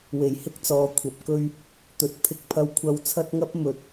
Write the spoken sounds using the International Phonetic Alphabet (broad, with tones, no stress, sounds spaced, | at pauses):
w e˨˩ j h ɪ˥ k̚ t͡s ɔː˨ kʷʰ ɐ˨˥ p̚ k ɵ˥ ɥ | t̪ ɵ˨ t̚ pʰ ɪ˧ k̚ pʰ ɐ˧ w kʷʰ ɐ˧ w t͡sʰ ɐ˥ t̚ ŋ ɐ˥ p̚ m ɵ˨ t̚